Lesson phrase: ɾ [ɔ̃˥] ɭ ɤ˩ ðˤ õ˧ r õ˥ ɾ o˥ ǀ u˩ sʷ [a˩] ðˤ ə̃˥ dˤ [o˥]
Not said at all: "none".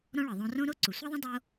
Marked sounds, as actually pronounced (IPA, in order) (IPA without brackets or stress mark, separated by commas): ɔ̃˥, a˥, o˥